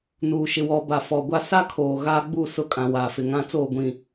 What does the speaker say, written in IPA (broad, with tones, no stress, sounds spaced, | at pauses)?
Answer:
n uː˨ ʃ ɪ˨ w ɔ˨ b a˨ f ɔ˨ ɡʷ a˦ s a˦ kʰ oː˨ ɣ aː˦ ɡ͡b u˦˨ s ʊ˦ kʼ ã˨ w aː˨ f ɪ˨ ŋ ã˦ t͡s oː˦˨ ɡʷ ĩ˨